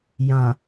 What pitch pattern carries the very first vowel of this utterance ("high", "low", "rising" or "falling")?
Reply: low